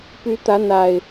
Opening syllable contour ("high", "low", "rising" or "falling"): rising